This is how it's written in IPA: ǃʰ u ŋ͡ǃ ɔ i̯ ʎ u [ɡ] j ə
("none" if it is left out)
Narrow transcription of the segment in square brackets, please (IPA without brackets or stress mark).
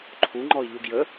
ɡ